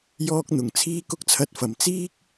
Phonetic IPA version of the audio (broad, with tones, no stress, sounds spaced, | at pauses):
j ɔː˧ k̚ n̪ ʊ˨˩ ŋ t͡sʰ iː˧ k ʊ˧ k̚ t͡sʰ ɐ˨ t̚ f ɐ˨˩ m t͡s iː˥ k̚